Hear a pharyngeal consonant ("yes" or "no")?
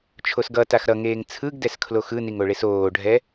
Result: no